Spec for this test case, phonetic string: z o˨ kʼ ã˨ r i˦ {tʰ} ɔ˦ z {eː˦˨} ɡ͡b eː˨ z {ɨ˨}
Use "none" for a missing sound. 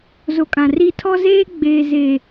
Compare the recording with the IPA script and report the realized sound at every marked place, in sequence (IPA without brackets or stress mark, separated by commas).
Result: tʰ, eː˦, e˨